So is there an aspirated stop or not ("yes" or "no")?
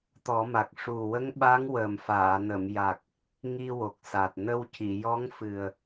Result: no